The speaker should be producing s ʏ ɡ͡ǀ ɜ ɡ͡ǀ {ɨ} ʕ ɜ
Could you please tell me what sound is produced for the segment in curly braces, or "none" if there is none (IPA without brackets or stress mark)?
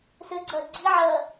i